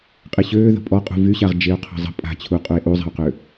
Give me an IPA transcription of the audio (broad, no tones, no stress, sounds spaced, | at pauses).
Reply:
qʼ e ɕ øː ð ə̤ pʼ ɔ qʼ ṳ v y ɕ a ʁ d͡ʒ e o̯ qʰ ɑ̤ zˤ ə̤ pʼ a̤ t͡ɕʰ u qʼ u e̯ ʔ u zˤ a̤ o̯ q ø